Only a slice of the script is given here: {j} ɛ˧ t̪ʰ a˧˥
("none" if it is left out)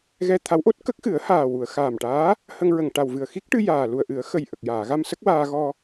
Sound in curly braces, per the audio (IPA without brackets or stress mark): ɣ